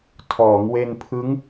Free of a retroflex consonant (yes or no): yes